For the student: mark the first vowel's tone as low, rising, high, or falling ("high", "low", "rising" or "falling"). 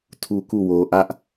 high